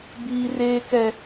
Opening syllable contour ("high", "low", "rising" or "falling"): high